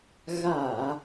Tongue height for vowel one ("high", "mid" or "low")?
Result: low